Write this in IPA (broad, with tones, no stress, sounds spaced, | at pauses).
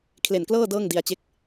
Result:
kʰ l e˨˩ n k l ɤː˥˩ d ɤː˥˩ ŋ d i˧ a̯ t͡ɕ e˥˩ k̚